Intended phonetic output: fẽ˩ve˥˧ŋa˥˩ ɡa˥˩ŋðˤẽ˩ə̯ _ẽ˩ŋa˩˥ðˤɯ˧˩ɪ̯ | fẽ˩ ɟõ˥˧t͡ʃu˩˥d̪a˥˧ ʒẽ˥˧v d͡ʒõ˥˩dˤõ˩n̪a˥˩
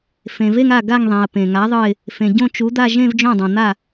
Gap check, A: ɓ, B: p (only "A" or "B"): B